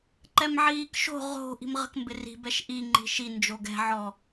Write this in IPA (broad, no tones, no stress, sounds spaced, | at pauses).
ǃ ɛ m ʕ iː k ʃ o̤ ʁ o̤ ʔ i̤ m ʁ ə̤ k m b ɪ r i̤ b ɛ ʃ ʔ i ŋ͡ǃ i̤ ʃ i n d͡ʒ o ɡ ɛ̤ ʕ ɔ